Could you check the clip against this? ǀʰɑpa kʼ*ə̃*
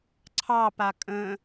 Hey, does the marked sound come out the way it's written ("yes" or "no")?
yes